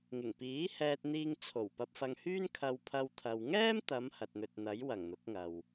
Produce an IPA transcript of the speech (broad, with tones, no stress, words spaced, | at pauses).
ŋɪ˨˩ŋpiː˨˥hɛː˧t̚n̪iː˧ŋ t͡sʰo˨˩wpɐ˧p̚fɐ˧ŋhyː˥n kʰɐ˧wpʰɐ˧wt̪ʰɐ˨w ŋɛː˥mt̪ɐ˨˧m hɐ˨t̚n̪ɵ˨t̚n̪ɐ˨˥j wɐ˨˩ŋn̪ʊ˨˥k̚ŋɐ˨w